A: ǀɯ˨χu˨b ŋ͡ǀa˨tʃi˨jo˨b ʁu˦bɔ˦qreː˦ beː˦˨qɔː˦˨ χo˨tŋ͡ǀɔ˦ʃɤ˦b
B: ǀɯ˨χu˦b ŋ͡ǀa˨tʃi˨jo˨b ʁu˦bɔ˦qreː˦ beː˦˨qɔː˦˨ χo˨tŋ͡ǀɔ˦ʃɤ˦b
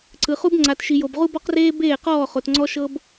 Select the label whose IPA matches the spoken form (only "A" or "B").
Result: B